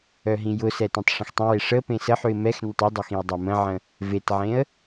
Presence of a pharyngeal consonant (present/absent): present